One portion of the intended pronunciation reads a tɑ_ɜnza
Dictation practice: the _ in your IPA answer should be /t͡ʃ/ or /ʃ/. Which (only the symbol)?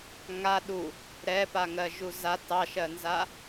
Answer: ʃ